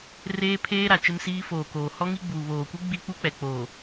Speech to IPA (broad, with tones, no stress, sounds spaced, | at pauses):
r eː˦ pʰ eː˦ ɾ a˨ t͡ʃ ɪ˦ m s iː˦ f oː˨ k oː˨ h ɔ˦ ŋ i˦ ɡ͡b uː˨ β oː˨ kʷ i˦ ɡ͡b i˦ k͡p u˦ k͡p ɛ˨ k͡p oː˨